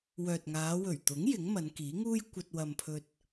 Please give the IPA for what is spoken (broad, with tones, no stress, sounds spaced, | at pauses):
w œː˨ t̚ ŋ aː˨˧ w ɵ˨˩ ɥ t̪ ʊ˨˥ ŋ j ɪ˨˥ ŋ m ɐ˨˧ n k iː˨˥ ŋ uː˥ j kʷ ɐ˧ t̚ w ɐ˨ m pʰ ɵ˧ t̚